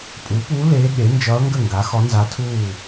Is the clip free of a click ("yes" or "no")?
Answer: yes